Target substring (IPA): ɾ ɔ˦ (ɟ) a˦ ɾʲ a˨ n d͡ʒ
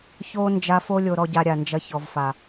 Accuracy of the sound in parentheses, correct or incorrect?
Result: correct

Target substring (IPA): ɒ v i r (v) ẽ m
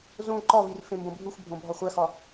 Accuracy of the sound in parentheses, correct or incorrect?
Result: incorrect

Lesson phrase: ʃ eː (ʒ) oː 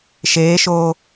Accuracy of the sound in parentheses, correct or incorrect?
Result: incorrect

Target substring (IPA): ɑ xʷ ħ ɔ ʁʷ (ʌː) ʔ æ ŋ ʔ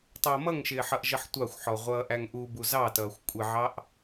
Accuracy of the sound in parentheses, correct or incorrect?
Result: correct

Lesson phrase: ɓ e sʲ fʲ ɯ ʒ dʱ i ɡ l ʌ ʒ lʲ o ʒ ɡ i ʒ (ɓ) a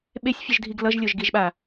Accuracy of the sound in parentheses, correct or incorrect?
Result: correct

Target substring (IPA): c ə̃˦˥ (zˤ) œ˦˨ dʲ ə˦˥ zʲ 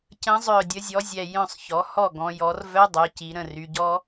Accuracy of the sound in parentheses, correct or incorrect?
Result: correct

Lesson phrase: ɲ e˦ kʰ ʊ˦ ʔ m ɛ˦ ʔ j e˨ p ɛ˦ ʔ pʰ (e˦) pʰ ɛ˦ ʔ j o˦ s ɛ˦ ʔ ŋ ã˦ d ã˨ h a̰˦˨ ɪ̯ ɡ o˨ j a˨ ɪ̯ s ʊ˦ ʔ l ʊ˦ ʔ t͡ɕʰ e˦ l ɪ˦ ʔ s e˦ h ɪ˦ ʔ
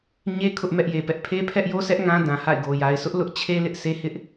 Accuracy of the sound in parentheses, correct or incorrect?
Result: correct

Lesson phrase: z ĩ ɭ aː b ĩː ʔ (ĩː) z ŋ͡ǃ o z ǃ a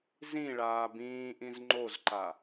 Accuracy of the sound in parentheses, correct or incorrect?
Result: incorrect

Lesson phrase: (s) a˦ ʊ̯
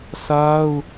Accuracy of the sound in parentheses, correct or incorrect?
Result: correct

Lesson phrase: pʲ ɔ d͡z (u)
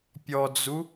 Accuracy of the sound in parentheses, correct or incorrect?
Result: correct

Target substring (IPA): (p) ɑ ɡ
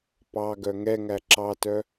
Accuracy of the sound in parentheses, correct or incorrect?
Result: correct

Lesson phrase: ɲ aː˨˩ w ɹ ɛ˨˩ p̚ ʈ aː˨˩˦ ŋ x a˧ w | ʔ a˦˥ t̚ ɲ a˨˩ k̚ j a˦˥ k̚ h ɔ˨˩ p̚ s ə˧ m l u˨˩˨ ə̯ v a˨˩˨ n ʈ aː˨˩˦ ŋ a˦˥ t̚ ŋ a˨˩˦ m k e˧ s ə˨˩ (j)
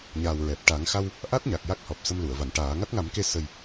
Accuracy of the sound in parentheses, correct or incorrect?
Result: correct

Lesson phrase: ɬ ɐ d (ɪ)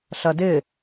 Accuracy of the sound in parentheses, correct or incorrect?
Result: correct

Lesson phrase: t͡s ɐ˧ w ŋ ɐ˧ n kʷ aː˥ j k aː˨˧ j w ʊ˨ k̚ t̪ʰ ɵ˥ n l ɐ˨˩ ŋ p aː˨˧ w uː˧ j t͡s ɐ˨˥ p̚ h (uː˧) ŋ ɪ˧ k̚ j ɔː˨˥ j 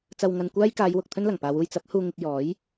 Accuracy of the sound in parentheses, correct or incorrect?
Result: correct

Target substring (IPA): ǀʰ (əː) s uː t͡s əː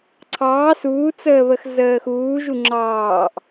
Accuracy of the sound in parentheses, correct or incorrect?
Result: incorrect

